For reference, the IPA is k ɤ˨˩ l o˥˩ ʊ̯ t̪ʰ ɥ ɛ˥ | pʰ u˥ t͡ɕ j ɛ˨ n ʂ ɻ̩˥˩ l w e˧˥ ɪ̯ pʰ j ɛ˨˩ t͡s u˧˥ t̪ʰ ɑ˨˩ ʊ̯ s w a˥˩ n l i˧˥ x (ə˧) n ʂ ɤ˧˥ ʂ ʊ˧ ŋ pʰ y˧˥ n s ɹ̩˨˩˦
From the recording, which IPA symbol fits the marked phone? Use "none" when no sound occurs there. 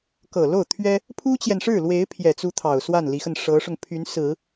ə˧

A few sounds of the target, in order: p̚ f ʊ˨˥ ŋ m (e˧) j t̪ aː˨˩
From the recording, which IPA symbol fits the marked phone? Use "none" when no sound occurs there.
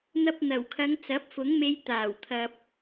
e˧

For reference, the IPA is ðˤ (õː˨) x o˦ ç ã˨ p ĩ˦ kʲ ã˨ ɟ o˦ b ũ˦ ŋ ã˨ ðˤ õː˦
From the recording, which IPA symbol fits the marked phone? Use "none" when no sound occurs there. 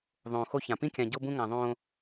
õː˨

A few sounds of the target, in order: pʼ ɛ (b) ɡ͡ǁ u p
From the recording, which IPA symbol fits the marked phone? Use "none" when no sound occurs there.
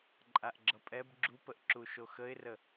b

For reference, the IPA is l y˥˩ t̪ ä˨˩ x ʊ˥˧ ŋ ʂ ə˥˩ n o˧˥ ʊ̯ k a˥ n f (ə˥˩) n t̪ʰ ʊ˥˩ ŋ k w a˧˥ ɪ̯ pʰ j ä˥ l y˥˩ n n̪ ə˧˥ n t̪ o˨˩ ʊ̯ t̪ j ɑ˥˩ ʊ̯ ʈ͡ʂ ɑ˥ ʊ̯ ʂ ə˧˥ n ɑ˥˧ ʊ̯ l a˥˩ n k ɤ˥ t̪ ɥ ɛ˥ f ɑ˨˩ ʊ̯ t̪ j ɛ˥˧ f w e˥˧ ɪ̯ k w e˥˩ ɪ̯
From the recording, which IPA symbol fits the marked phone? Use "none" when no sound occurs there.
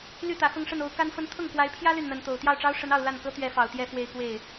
ə˥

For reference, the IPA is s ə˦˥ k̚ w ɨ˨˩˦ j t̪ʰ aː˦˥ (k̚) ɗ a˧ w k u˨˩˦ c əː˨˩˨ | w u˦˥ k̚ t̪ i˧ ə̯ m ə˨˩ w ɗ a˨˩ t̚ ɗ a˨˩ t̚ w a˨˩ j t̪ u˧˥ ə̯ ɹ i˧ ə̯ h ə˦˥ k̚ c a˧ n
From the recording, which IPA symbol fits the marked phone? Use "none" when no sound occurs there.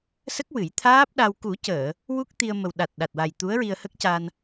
p̚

